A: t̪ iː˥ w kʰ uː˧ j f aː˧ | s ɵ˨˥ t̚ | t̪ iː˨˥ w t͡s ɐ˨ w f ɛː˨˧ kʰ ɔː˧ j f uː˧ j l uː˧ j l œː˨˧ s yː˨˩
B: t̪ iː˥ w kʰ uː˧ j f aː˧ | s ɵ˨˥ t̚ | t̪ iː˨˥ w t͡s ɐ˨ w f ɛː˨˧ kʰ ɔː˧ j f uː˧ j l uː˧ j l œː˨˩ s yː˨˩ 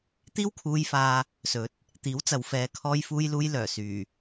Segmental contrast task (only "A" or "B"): B